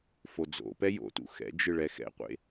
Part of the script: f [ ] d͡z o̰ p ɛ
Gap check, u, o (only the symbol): o